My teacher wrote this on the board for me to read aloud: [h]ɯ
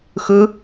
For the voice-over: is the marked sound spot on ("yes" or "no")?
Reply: no